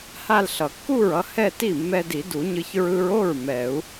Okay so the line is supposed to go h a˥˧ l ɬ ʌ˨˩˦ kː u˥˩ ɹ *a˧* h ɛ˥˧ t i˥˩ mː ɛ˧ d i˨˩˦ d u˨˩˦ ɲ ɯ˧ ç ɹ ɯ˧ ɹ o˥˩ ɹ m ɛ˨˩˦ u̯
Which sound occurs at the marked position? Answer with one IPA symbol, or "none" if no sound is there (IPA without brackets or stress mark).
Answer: ʌ˧